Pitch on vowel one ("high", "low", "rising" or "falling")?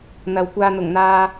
low